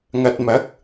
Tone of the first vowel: low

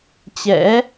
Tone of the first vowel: rising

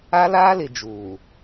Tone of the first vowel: high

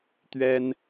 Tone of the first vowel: high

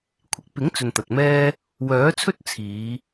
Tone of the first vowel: low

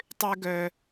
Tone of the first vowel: high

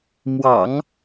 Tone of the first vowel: low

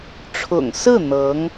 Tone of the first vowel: low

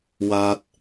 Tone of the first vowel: high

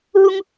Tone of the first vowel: high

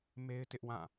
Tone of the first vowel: high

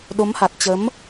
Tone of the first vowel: rising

